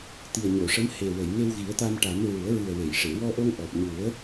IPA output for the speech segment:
t̪ i˨˩ ə̯ ɲ o˨˩˨ ʂ ə˧˥ m h e˨˩ w ə˨˩˨ j ŋ e˧ w ɣ i˨˩˦ ə̯ t̪ a˧ m ʈ a˨˩˦ m ɹ u˨˩˦ ə̯ ɹ ɨ˨˩ ə̯ w e˨˩˨ j ʂ e˨˩˨ w ɔ˧ ʔ o˧ ŋ ʔ ɔ˨˩ p̚ ɲ u˨˩˦ ə̯

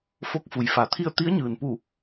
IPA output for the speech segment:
f o˧˥ k̚ f u˩ j f a˩˧ t̪ʰ i˥˨ ə̯ t̪ i˧˥ ə̯ ɲ ɯː˩ n p u˧˩

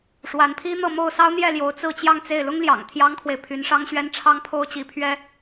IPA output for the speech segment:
ʂ w a˧˥ n pʰ i˥ n̪ ɤ˥˧ m o˥˩ ʊ̯ s ɑ˥ ʊ̯ n̪ j ɛ˥˩ l j o˧˥ ʊ̯ t͡s ɹ̩˥˧ t͡ɕ j ɑ˥˧ ŋ t͡s e˥˩ ɪ̯ l ʊ˥ ŋ l j ɑ̰˨˩ ŋ t̪ʰ j ɑ˥ ŋ kʰ w e˨ ɪ̯ pʰ y˧˥ n ʂ ɑ˥ ŋ ɕ ɥ ɛ˥ n ʈ͡ʂʰ ɑ˥ ŋ pʰ o˥ ʊ̯ t͡ɕ i˧˥ pʰ ɥ ɛ˥

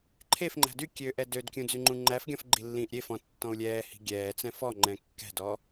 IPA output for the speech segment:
ǃʰ e f ŋ͡ǃ æ̤ d y kʲ ø ʔ ɛ d ø d kʲ ũ d͡z y ŋ͡ǃ ũ ŋ͡ǃ æ f ɡʲ ɔ̃ f ɡ͡ǃ i lː ĩː ʔ ɾʲ e f ɔ̃ tː ɔ̃ u̯ lʲ ɛː h i̤ ɡʲ ɛː t͡s ɛ̃ f ɔ ŋ͡ǃ ɛ̃ kː ɛ̤ d ɔ

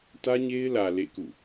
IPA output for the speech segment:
t ä˦ ɲ e˦ ɪ̯ l ä˨ l ḛ˦˨ k ṵ˦˨

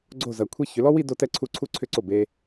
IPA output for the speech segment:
ɡ͡ǀ o˥˩ z ɐ˧˩˧ kʷʰ e˥˧ ç ʏ˨˦ l ɔ˥ w i˥˧ d o˥˧ t ɛ˥ ǀʰ u˥˩ ǀʰ u˥ ǀʰ ʏ˥˧ ǀ o˥˩ b e˥

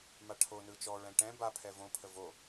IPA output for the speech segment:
m a ʈʰ o n ɯ t͡ʃ ɔ ɹ ɛ̃ ʈ ɛ̃ b a pʰ ɛ v õ pʰ ə v o

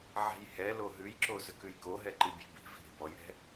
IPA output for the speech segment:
ʕ ɛ̤ j h ɛ l o ɦ ʉ j ǁ o z ʏ k ʉ j k o ɦ ɛ ǃ i bʲ ɛ̤ b i̤ v i̤ ɾ i̤ b ɔ j ɾ ɛ̤

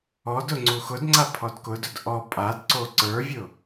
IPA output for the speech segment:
ɔ d ʊ ŋ͡ǀ u x ʊ d ŋ͡ǀ a pʰ ɔ d k ʊ d ʊ d ʔ ɔ pʼ a d ǀ o ǀ ə˞ vʲ ʊ

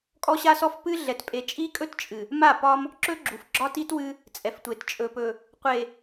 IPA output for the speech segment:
kʼ ɔ˦ ɕ a˦ s ɔ˦ f p ɨ˦ ɮ ɛ˨ t pʼ e˨ t͡ʃʼ i˦ kʼ ɵ˦ t t͡ʃʼ ɨ˨ | m a˦˨ p ɒ˦ m | ǁ ɵ˦ ɡ͡ǁ u˨ f ɡ͡ǁ ɒ˦ t i˦ t w ɨ˦ | t͡sʼ ɛ˨ f tʷ e˨ t t͡ʃʼ ɵ˨ p ɵ˨ | qʷ e˨

